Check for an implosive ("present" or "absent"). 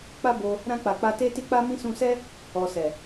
absent